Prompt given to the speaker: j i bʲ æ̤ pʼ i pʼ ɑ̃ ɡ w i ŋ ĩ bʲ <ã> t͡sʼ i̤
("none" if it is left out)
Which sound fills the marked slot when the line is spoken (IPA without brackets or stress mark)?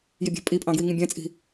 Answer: æ̃